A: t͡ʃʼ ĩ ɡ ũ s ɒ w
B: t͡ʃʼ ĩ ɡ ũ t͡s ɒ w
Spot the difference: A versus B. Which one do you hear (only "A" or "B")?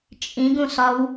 A